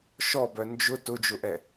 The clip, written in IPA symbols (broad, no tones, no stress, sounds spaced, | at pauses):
ʃ ɔ b œ n d͡ʒ ʊ t ʊ d͡ʒ ʊ ʔ ɛ